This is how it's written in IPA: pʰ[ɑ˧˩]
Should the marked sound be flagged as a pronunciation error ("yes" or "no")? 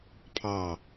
no